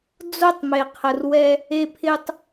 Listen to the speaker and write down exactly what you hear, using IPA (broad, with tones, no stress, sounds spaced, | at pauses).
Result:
d͡z o˦˨ tˤ m e˨ qʰ ə˨ r w ɛ˧ | e˧ pʰ ɪ˧ tˤ